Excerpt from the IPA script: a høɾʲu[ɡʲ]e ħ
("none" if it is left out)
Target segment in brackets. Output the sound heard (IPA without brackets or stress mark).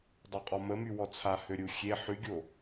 xʲ